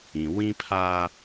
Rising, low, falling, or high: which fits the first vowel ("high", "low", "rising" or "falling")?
low